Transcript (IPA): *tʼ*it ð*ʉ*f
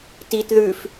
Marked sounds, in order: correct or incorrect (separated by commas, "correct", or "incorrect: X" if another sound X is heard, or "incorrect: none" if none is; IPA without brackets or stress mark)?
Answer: incorrect: t, correct